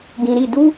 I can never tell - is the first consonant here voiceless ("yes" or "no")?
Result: no